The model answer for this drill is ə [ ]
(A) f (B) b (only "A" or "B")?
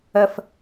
A